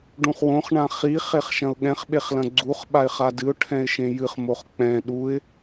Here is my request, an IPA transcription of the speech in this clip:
ɖ ũ χ w õ χ ɳ ã χ i χ e χ ʃ ɐ̃ ʊ̯ ɠ ɛ̃ χ ɓ e χ l ɐ̃ ɡ͡ǀ u χ ɓ a ɪ̯ χ a d ɨ ʊ̯ ʈʰ ɛ̃ ɪ̯ ʃ ẽ j ɨ χ m o χ k͡p ɛ̃ ɗ u ɪ̯

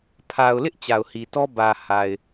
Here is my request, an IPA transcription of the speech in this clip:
pʰ a˨ ʊ̯ l ɪ˦ ʔ t͡ɕ a˨ ʊ̯ h i˨ t ɔ˦ b ä˨ h a˨ ɪ̯

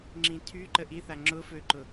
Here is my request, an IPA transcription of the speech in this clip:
ŋ͡ǁ ĩ tʰ y ǃ ə ʔ i θ a ŋ͡ǁ ʊ f ø ǃ ʊ

